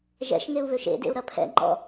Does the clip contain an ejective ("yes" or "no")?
no